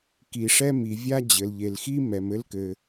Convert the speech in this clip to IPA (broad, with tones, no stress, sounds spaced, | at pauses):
k i˨ ʂ ɛ˥ m i˨ vʲ a˥ d͡ʑ ɘ˨ l ʎ e˨ l x i˥ m ɛ˨ m ɘ˥ l k ɘ˨